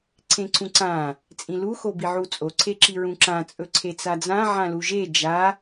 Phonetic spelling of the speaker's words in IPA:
ǀʰẽǀũǀã | t͡sʼĩlu xobiʕut͡sʼo ǀʰeǁiɹũǁã t͡sʼɵǀʰet͡sad͡zã ʕãluʒe d͡ʒa

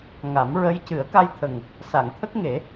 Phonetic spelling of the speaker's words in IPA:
ŋa˨˩˦mɹə˧˥j cɨ˨˩˦ə̯ka˧jt̪ʰə˨˩ŋ | sa˨˩˨ŋt̪ʰə˦˥k̚ŋe˨˩˦

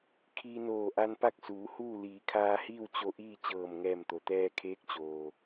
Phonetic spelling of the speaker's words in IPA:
kʰiː˧noː˧˩ ʔa˧npa˥˨k̚ suː˩˧huː˥˨ liː˩˧kʰaː˧hiː˥˨w t͡ɕo˧ ʔiː˥˨t͡ɕɤː˧˩mŋɛː˧˩mt̪o˩ t̪ɛː˧kʰeː˧˥k̚t͡ɕoː˩

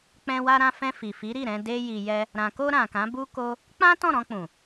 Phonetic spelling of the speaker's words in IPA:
k͡pɛ̃˧ wa˧ɾã˧fɛ̃˧ fi˨fi˨˦ɾi˦˨ɾɛ̃˧ de˦ ji˧jɛ˦ | ɾã˨ko˧ ɾã˨kã˨˦bu˦ ko˦ | k͡pã˦ tɔ̃˦˨ɾɔ̃˧k͡pũ˨

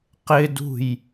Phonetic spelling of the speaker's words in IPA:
qɪdṳj

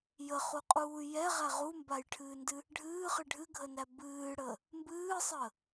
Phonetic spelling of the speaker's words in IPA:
jəχuqʼuː jɛʁæ ʁumbajʈʰɨːndɨ | ɖʱɨːχɨ ɖʱɨɡʱənæ bɨːɽə | mbɨːsˤə

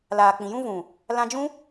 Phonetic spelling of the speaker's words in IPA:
laː˨k͡pĩ˨jũ˦ vũ˨ | lã˧d͡ʒũ˦

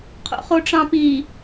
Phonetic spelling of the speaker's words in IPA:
qʰo̰χoʈ͡ʂɑ̃pi

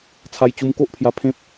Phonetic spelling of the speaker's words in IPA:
t͡sʰa˧jt͡ɕu˧mko˦ʔpʰja˧ pʰẽ˦p̚

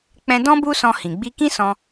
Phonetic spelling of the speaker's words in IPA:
k͡pɛ̃˧dɔ̃˦ bu˦sɔ̃˧ hĩ˨ɡ͡bi˧ kĩ˦sɔ̃˧

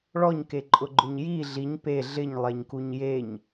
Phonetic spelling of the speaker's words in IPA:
ɭɔɲkeǃʼʊɡ͡ǃʊɲ ji ɮiɲ pe ɮɪɲlˠeɲkuɲ jeɲ

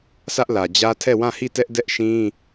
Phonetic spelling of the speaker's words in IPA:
sʰä˦ʔlä˨d͡ʑä˦ tʰɛ˦˨wã˦˨hi˦˨tɛ˦ʔ dɛ˦ʔʃĩ˦

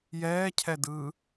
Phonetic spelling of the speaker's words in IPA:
jɛːcʰɛdɯː

